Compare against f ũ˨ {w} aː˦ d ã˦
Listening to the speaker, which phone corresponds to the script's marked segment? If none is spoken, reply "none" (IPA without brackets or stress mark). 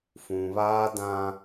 β